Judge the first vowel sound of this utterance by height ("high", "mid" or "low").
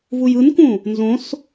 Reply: high